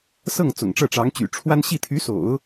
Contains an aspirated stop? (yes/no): yes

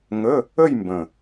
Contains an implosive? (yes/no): no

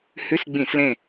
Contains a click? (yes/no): no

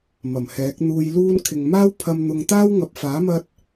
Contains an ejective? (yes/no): no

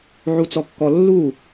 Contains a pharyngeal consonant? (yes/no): yes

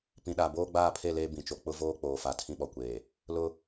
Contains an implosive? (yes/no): yes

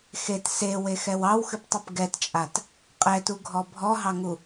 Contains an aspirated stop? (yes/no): no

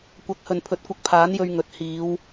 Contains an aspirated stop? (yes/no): yes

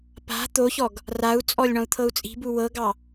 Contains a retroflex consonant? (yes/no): yes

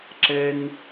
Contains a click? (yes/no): yes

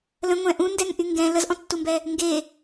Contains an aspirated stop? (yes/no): no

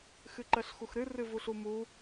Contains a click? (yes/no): yes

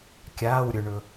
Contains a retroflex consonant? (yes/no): yes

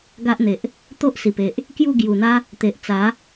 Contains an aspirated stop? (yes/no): no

